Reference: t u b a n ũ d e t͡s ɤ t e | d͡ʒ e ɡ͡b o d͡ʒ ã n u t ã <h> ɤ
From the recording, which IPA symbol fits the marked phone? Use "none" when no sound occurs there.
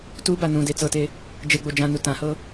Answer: h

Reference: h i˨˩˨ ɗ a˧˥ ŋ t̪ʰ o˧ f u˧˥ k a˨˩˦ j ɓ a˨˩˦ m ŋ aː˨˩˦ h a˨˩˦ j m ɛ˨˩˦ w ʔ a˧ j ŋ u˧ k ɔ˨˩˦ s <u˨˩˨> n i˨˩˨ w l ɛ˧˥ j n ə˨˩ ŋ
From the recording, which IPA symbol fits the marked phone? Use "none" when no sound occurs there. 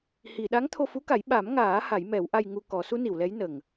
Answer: u˧˥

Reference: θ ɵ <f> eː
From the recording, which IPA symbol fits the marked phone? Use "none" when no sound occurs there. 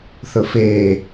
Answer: f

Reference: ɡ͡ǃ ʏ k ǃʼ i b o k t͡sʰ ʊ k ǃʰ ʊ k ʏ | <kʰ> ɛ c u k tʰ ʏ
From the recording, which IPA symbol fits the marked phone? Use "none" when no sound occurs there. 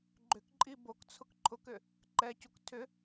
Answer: ǃ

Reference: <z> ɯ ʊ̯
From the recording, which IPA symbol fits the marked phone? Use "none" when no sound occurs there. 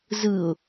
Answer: z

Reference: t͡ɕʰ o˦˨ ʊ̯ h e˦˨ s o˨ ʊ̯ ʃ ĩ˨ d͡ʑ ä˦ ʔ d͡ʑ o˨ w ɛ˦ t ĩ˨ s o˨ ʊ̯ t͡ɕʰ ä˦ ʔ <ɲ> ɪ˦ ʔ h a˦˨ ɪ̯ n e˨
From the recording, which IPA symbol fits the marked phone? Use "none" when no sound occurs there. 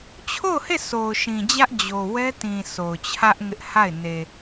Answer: ŋ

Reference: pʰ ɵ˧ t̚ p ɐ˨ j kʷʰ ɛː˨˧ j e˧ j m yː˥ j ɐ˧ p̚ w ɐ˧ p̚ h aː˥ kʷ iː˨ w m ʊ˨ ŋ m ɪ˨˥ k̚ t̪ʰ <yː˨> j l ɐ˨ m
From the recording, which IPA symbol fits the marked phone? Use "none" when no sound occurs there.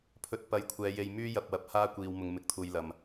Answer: uː˨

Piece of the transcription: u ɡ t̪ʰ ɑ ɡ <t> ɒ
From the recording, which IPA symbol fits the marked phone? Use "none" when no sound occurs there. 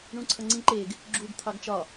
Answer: t͡ʃ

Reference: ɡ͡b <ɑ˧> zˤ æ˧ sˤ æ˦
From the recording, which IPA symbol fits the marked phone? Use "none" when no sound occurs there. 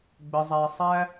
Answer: ə˧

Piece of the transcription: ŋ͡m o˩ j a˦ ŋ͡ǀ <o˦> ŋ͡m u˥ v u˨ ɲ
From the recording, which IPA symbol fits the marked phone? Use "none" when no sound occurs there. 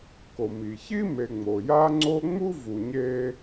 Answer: o˦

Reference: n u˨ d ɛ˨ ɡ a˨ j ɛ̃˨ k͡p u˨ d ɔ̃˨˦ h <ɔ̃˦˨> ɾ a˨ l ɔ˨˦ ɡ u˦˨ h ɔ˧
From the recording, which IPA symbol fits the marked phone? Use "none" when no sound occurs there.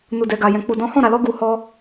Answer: ɔ̃˦˨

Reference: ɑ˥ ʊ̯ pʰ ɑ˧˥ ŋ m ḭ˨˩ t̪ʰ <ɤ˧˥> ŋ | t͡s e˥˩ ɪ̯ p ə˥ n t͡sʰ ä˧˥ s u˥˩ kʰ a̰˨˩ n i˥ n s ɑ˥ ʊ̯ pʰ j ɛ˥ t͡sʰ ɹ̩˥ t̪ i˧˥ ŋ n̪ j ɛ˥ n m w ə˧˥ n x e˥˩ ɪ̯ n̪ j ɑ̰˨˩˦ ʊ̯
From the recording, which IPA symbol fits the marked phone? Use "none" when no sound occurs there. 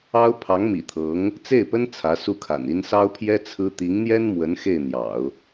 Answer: ɤ˧˥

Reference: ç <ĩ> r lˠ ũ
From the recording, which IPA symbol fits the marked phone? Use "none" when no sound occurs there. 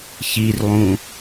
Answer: i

